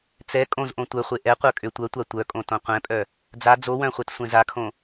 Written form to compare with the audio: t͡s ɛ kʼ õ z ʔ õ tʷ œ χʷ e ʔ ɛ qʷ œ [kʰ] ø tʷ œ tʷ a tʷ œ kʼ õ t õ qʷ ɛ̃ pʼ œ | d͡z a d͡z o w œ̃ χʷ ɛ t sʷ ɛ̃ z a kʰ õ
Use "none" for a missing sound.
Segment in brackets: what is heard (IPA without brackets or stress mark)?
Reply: kʼ